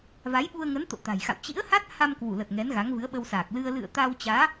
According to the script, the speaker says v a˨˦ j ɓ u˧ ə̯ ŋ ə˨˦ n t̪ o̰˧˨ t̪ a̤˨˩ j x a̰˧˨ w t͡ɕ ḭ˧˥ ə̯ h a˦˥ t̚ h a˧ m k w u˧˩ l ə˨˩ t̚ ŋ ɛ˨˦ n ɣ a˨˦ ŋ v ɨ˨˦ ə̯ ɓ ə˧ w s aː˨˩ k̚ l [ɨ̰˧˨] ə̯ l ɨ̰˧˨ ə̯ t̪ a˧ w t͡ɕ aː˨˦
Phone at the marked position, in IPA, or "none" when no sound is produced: ɨ˧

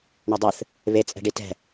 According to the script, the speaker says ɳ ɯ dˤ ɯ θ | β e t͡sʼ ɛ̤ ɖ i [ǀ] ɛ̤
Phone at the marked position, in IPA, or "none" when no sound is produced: t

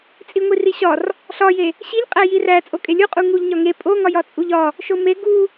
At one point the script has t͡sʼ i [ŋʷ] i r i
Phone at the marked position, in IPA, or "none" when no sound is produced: ŋʷ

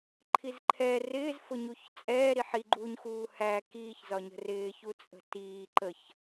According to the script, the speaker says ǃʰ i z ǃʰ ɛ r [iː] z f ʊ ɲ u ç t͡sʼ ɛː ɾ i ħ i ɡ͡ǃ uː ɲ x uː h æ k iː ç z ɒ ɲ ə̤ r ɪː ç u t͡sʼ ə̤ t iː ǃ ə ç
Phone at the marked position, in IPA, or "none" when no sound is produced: ɪː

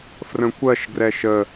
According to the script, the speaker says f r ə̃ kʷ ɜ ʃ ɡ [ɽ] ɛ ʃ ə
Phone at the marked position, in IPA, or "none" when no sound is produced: r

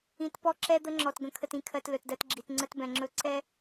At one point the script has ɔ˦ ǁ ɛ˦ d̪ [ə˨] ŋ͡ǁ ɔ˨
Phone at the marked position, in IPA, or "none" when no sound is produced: ə˦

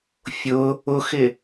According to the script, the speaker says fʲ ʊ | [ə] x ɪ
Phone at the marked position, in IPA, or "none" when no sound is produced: ʊ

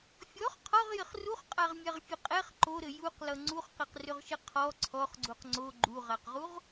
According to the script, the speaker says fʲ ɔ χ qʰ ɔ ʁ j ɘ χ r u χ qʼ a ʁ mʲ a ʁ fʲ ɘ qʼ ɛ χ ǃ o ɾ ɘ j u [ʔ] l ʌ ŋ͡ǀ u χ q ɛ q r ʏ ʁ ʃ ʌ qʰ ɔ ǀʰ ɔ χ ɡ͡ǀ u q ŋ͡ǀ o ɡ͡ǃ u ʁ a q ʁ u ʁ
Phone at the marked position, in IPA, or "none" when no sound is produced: q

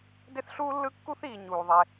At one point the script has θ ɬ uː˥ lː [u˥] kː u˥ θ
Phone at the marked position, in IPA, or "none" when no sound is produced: ɯ˥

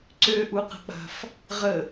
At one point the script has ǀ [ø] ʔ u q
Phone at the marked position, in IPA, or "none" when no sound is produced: ø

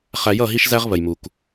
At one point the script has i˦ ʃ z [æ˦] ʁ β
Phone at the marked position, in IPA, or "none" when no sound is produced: æ˦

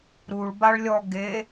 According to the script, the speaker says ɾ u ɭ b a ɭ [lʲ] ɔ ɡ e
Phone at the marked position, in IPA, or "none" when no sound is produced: lʲ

